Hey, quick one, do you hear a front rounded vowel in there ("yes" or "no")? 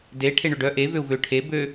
yes